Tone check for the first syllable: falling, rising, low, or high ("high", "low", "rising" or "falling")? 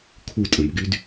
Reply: falling